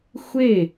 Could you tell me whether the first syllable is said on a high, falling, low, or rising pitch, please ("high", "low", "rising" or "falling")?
falling